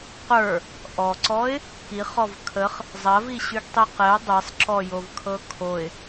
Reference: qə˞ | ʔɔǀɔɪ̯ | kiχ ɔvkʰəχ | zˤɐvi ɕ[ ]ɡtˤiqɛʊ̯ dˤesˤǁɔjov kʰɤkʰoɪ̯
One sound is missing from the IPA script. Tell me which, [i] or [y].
y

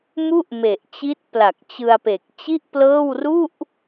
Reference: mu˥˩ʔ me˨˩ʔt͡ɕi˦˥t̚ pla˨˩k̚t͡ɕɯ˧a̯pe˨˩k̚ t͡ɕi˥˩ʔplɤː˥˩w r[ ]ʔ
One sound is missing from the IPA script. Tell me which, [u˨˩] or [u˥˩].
u˥˩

